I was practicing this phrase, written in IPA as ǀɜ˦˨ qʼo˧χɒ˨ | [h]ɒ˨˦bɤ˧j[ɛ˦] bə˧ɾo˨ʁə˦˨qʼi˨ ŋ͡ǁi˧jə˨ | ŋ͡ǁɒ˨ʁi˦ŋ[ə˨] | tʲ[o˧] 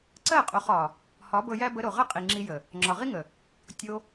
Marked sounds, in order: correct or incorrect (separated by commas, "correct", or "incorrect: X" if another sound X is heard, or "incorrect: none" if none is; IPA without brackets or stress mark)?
correct, incorrect: æ˦, correct, correct